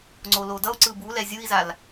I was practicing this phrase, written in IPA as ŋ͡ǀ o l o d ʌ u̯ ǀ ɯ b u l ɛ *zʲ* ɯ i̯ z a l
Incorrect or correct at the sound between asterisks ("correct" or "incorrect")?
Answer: correct